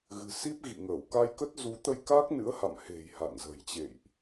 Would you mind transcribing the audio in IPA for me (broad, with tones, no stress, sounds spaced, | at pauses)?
ɣ ɨ̤˨˩ s i˦˥ p̚ ɣ ḭ˧˨ ŋ əː˧˩ w k a˧ j k ə˦˥ t̚ z u˨˦ t̪ ə˧ j k aː˦˥ k̚ n ɨ̰˧˥ ə̯ h a̰˧˨ m h e̤˨˩ j h a̰˧˨ n z ə̤˨˩ j t͡ɕ ḛ˧˨ j ʔ